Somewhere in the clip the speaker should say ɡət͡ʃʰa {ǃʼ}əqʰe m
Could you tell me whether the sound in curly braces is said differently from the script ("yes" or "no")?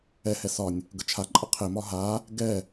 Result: no